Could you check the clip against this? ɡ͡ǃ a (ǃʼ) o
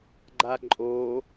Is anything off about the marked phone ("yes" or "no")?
no